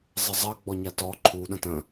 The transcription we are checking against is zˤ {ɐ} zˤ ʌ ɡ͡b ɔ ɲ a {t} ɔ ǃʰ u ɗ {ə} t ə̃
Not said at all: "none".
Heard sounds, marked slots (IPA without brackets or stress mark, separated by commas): ə, t, ə̃